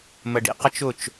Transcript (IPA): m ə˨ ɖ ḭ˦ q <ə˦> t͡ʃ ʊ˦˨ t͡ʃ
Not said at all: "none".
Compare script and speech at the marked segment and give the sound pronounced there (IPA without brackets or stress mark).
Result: ə˦